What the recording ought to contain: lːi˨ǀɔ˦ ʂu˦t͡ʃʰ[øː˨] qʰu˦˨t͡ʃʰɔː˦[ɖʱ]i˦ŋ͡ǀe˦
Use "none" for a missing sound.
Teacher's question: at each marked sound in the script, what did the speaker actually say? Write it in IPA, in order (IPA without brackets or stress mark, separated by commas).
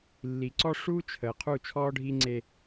əː˨, ɖʱ